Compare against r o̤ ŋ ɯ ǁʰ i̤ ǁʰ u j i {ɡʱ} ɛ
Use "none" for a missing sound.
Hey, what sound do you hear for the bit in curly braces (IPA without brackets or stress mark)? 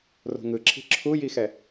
x